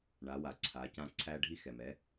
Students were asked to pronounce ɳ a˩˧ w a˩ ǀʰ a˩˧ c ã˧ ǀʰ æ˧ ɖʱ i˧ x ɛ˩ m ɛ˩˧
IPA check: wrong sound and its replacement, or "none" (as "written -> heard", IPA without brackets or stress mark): none